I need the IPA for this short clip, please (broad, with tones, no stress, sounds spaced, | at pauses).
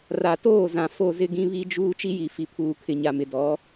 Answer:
r a˨ t oː˦˨ z ã˨ f o˦˨ z ɪ˦ ɡ ĩ˦ β i˦ d͡ʒ uː˦ t͡ʃ i˦ j i˨ f i˨ pʰ uː˨ kʰ ɪ˨ ɲ a˨ m ɪ˨ d ɔ˨˦